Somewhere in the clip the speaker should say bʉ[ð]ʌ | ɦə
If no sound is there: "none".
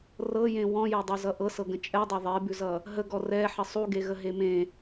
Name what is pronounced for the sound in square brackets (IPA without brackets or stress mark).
z